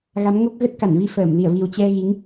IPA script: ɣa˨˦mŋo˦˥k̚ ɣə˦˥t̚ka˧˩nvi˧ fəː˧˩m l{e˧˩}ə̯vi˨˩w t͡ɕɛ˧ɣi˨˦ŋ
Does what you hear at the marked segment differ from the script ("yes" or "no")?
yes